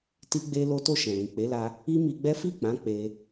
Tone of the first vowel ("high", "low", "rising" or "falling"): high